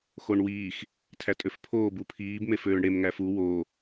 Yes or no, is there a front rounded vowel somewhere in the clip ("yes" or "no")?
yes